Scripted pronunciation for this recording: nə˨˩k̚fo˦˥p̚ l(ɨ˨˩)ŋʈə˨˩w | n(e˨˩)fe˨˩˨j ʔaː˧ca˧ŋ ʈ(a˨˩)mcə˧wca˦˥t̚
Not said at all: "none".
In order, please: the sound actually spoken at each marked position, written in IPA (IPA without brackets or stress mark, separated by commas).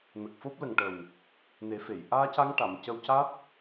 ə˨˩, e˨˩˦, a˨˩˨